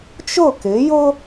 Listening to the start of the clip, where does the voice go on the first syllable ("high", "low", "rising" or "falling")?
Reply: falling